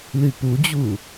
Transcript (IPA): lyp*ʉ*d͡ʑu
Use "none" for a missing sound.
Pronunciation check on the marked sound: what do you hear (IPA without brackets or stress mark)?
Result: u